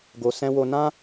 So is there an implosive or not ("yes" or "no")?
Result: no